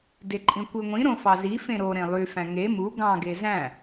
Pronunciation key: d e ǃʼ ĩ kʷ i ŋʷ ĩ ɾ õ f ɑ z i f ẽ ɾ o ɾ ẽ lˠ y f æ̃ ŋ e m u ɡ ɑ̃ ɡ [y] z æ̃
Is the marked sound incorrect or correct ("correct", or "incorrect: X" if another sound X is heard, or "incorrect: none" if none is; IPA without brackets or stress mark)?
incorrect: e